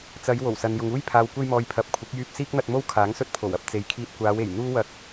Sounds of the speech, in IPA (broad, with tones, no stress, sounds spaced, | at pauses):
t͡s ɐ˨˧ j w o˨˩ w s ɐ˨ n j ʊ˨ ŋ uː˥ j pʰ aː˨ w kʷ e˧ j m ɔː˨ j pʰ ɐ˨˥ p̚ kʷʰ ɪ˨˥ k̚ j yː˧ p̚ s iː˥ k̚ n̪ ɐ˧ t̚ m o˥ w kʰ aː˨˥ ŋ s ɵ˥ t̚ pʰ o˨˩ w ɐ˨˥ p̚ t͡s e˨ j kʰ iː˧ t̚ kʷ aː˨˧ w e˨˩ j n̪ uː˥ w ɐ˧ k̚